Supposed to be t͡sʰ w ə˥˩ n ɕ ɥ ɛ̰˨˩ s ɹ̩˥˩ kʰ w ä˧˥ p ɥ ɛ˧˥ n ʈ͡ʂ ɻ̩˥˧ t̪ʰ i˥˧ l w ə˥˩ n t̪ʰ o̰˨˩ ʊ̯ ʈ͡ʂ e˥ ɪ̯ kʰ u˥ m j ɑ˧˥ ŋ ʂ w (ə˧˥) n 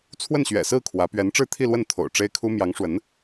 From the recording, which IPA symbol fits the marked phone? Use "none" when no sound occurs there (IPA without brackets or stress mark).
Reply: ə˧˥